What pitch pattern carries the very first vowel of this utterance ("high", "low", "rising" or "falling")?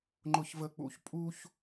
high